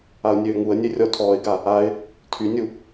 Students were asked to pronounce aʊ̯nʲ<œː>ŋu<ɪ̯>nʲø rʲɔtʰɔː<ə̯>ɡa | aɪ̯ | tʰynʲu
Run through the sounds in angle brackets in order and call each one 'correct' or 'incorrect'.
incorrect: øː, incorrect: ə̯, incorrect: ɪ̯

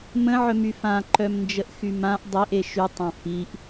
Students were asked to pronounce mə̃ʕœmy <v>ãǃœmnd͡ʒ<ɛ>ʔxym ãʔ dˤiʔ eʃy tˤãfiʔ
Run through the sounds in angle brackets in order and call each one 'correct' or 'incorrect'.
incorrect: f, incorrect: ə

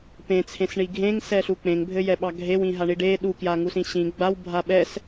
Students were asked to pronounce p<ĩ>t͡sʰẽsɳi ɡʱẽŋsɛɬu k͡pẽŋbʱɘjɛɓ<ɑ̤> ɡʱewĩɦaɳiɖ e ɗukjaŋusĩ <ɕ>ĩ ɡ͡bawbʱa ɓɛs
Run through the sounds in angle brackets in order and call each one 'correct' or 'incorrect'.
incorrect: ẽ, incorrect: ɑ, correct

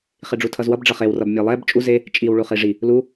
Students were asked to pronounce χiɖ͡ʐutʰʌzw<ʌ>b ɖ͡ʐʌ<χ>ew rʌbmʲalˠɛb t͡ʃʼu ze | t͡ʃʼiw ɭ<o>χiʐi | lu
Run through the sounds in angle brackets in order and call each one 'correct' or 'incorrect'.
correct, correct, incorrect: u

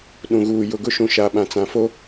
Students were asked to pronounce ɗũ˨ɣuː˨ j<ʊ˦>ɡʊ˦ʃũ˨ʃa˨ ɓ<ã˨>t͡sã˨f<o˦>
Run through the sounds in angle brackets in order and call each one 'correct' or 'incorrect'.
incorrect: ʊ˨, correct, correct

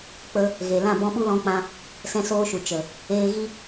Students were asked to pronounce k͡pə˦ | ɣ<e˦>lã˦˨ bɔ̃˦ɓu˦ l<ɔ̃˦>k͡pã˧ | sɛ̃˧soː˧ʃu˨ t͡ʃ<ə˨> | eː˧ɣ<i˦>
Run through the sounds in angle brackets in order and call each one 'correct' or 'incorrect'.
incorrect: e˨, incorrect: ɔ̃˧, correct, correct

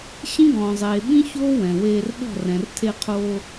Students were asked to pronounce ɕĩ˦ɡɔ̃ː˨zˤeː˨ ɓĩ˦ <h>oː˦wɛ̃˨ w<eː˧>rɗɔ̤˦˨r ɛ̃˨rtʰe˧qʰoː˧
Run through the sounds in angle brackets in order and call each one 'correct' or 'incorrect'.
incorrect: ç, correct

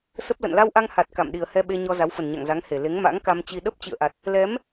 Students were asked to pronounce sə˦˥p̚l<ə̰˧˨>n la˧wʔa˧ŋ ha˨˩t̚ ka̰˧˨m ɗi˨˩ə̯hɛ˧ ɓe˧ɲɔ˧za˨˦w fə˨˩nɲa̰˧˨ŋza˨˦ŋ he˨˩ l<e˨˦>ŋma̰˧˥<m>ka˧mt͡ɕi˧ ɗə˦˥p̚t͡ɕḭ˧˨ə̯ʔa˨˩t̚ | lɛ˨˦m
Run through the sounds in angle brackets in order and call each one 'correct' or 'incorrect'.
correct, correct, incorrect: ŋ

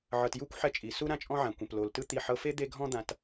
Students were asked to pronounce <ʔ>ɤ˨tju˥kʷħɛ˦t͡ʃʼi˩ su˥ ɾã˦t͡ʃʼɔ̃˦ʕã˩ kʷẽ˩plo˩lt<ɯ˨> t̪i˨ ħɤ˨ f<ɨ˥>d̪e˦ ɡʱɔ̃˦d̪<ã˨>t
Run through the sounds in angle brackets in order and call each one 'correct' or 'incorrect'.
incorrect: ʕ, incorrect: ɯ˦, incorrect: e˥, correct

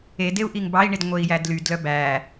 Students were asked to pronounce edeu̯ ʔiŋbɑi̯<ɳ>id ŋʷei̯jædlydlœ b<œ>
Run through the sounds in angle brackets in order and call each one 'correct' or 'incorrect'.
correct, incorrect: æ

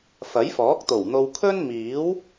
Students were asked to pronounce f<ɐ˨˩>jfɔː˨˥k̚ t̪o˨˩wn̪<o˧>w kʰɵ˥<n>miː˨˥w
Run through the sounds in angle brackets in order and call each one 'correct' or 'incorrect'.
incorrect: ɐ˨˥, correct, correct

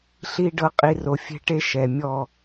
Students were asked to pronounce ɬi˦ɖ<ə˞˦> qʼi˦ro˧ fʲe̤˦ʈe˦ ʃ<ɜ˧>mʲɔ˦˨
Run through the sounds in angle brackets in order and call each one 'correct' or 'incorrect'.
incorrect: ɤ˦, incorrect: ɛ˧

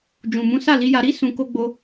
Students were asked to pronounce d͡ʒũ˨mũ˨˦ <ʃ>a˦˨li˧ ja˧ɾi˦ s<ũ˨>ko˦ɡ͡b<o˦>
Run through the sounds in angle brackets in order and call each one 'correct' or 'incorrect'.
incorrect: s, incorrect: ũ˧, correct

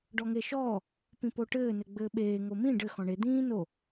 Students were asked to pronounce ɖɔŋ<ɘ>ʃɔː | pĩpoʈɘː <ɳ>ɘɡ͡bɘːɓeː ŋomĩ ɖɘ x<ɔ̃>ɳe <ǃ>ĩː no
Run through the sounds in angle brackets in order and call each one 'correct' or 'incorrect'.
incorrect: e, incorrect: n, correct, incorrect: d̪

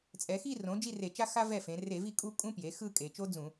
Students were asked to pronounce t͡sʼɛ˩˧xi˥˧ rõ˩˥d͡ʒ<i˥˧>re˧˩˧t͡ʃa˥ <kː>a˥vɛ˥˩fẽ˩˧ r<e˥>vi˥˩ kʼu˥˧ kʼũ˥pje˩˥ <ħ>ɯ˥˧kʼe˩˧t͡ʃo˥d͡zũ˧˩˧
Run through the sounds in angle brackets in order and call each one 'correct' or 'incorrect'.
correct, incorrect: x, incorrect: e˧˩˧, incorrect: x

